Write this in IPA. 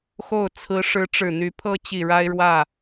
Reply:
xo˥˩ʊ̯ t͡sʰɹ̩˧˥ ʂɻ̩˧˥ʈ͡ʂɻ̩˨˩n̪y˧˥ pʰɤ˥t͡ɕi˨˩ ɻa˥ɪ̯ɻwä˥˩

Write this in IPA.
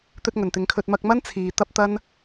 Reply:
t̪ɵ˧t̚ ŋɵ˨˩nt̪ɪ˨˧ŋkʰɵ˧t̚ mɐ˧k̚mɐ˥n t͡sʰiː˨ t̪ɐ˥p̚t̪ɐ˥n

